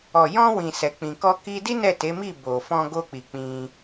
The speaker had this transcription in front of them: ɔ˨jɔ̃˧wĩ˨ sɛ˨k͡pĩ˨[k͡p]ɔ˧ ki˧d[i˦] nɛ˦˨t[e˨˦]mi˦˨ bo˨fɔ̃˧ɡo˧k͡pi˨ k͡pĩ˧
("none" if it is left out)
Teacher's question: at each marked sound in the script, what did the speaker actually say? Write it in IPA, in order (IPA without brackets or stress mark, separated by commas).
k, i˦, e˨˦